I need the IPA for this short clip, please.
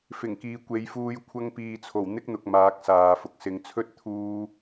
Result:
f ɪ˨˩ ŋ k iː˨ kʷ e˨˧ j f uː˧ j kʷʰ ɐ˧ ŋ p iː˨ t͡sʰ o˨˩ w n̪ ɪ˥ k̚ n̪ ʊ˨ k̚ m aː˨˥ k̚ s aː˨ f ʊ˨ k̚ s ɪ˨ ŋ t͡sʰ ɵ˥ t̚ t̪ʰ uː˥

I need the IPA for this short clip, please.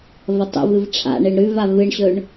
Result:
v ɐ tˤ ṵ v ɨ v ʈ͡ʂʰ a̰ ɳ e ɳ ɾ ʉ v a v ɨ ɳ ɕ ɵ ɳ

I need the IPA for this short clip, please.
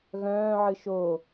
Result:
ɣ œ̃ː ʕ ɨ ʃ o

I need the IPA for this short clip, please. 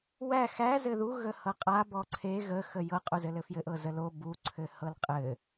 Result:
w æ x æ z ɘ ð u ɣ ə h ɤ qʼ a b ɔ ǀʰ e ɣ ə x ə j ɤ qʼ u z ɘ l ɘ f j ɘ ʔ ɤ z ə l o b u ǀʰ ɘ h ɤ l qʼ ɘ

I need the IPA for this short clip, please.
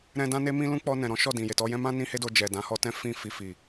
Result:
ɾ ɛ̃˧ d ã˦ n e˦ m ĩ˦ l ũ˦ k͡p ɔ˧ n ɛ̃˨ ɾ ɔ̃˨˦ ʃ ɔ˦˨ d ĩ˨ j e˨ t ɔ˧ j ɛ̃˦ m ã˦ n ĩ˦ h e˦ d o˧ d͡ʒ ɛ˨ d ã˨˦ h ɔ˧ t ɛ̃˦ f ĩ˦˨ f i˧ f i˨

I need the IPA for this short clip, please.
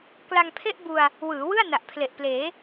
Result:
k l a˧ ŋ pʰ e˥˩ ʔ b u˧ a̯ | w ɯː˩˦ w ɯ˥˩ a̯ n a˨˩ ʔ pʰ l e˨˩ ʔ p l eː˩˦

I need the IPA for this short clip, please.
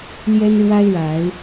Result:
l j ɛ˦ n ɻ w a˦ ɪ̯ ɻ a˨˦ ɪ̯

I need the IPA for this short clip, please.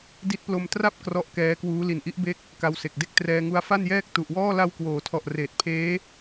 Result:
d i˦˥ t̚ p l o˧ m t r a˥˩ p̚ k r ɔ˥˩ ʔ k ɛː˦˥ k w uː˦˥ l i˨˩ n ʔ i˦˥ ʔ b e˦˥ k̚ | k a˧ w s e˨˩ k̚ d e˥˩ k̚ t r ɛː˧ ŋ u˦˥ a̯ f a˥˩ n j ɛː˥˩ k̚ t u˨˩ ʔ w ɔː˥˩ l a˧ w k w oː˩˦ tʰ ɔ˨˩ ʔ r eː˨˩ t̚ pʰ eː˦˥

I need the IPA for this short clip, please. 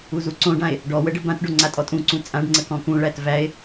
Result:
u z u ǀ õ ɖ ã e̯ | ɖ ɔ w ə ɖ ə b ã t ɖ o ŋ͡ǀ a tʼ ɔ tʼ ũ ǀ ũ t͡sʼ ã ɖ ŋ͡ǀ ə k ɔ̃ k ũ ɭ æ t v æ e̯

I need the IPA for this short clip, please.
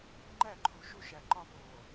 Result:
ŋ͡ǃ æ˦˨ ǃʰ u˨ ʃ u˦ ʃ æ˨ ǃ ɒ˦ p oː˨

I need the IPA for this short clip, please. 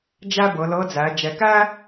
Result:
d͡ʒ æ˥ b ɤ˩˧ l ɤ˧˥ d͡z æ˩˧ d͡ʒ ɛ˩ k æ˥

